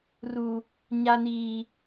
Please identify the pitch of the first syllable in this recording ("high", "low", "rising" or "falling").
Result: high